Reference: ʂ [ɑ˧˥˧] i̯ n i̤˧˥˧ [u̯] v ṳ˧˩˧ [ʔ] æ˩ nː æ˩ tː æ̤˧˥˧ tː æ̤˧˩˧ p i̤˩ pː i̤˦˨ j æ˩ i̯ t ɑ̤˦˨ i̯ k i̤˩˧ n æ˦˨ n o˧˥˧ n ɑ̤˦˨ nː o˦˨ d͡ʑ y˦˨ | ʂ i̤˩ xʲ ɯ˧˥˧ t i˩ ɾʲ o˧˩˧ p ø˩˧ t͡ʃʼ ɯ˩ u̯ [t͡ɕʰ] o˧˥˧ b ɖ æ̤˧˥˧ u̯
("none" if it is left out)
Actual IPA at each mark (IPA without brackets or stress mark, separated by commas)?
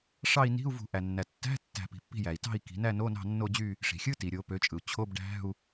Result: ɑ˦˨, u̯, ʔ, t͡ɕʰ